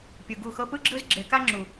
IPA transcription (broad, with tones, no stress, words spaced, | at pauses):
pʲɯ˨ɡu˦˨xɤ˦ pɯ˦ɡ͡ǁɯ˦zɡ͡ǁe˨˦ka˦ ŋ͡ǁu˨